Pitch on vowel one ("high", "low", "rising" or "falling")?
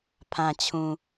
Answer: low